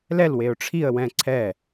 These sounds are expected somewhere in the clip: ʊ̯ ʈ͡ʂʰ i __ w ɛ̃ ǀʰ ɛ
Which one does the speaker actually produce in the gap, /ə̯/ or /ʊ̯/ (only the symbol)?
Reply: ə̯